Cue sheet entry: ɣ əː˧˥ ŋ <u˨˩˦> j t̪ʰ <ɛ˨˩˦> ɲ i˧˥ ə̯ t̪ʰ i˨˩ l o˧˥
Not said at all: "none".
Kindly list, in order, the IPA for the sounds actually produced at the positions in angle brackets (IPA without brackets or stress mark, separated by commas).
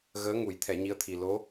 u˨˩˦, ɛ˨˩˦